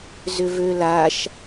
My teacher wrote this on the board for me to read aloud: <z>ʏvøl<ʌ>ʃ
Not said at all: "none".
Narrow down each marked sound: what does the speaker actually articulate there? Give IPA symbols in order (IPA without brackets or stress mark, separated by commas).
z, a